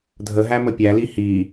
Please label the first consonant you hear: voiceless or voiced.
voiced